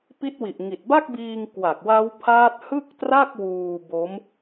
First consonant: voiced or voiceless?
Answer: voiceless